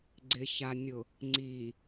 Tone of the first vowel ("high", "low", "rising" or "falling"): low